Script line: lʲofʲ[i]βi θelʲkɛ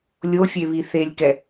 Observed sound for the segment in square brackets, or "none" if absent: e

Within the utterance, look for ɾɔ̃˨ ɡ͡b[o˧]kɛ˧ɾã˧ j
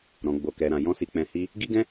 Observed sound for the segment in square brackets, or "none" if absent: o˧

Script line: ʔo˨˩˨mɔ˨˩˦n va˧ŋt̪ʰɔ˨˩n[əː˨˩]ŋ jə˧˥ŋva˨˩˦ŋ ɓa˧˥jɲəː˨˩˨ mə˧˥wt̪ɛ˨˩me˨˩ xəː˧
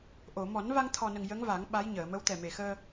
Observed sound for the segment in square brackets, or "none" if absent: ə˨˩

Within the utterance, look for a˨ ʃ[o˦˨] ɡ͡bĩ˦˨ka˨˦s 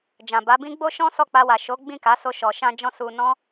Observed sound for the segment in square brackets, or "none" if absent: o˨˦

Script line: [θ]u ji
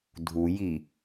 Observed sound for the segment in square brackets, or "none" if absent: dʱ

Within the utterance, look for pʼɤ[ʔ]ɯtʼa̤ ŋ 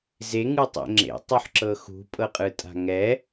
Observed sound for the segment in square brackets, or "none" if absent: qʼ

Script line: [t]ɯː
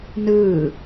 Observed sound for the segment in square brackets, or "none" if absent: n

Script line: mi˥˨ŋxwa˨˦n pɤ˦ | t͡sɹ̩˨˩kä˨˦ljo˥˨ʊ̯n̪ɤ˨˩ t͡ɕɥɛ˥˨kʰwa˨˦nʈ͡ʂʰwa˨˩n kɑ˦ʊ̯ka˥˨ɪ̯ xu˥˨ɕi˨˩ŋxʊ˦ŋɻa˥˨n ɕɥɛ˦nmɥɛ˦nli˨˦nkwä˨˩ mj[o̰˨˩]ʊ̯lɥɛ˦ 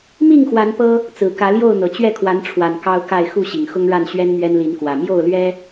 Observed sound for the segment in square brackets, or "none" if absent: o˥˨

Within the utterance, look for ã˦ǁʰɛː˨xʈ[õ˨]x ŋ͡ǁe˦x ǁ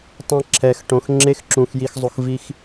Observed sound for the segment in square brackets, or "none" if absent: õ˨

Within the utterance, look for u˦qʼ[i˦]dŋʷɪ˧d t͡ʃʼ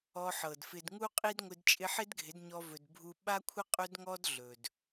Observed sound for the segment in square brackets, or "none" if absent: i˦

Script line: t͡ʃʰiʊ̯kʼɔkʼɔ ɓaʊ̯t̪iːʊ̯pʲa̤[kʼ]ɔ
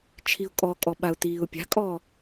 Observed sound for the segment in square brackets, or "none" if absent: kʼ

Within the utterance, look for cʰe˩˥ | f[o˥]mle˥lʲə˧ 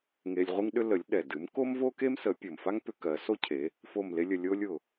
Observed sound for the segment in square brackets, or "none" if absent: o˥˩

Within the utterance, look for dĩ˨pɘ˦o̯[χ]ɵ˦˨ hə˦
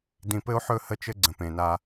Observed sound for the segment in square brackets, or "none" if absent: ħ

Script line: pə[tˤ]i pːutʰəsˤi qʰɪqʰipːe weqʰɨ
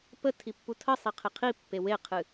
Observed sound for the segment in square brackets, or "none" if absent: tʰ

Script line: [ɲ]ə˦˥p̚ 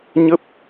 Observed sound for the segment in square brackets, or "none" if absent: ɲ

